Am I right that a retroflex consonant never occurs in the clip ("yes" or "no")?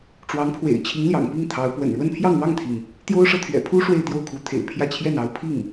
no